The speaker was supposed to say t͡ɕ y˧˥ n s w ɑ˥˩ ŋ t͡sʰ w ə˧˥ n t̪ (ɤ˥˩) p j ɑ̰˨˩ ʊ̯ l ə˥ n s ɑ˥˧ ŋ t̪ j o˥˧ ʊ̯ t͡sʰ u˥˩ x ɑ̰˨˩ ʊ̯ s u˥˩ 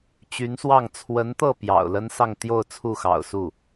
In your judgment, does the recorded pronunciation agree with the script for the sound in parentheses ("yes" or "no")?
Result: yes